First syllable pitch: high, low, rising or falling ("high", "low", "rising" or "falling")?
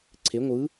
rising